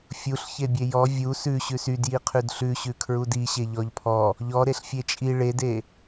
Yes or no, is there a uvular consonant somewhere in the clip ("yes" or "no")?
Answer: yes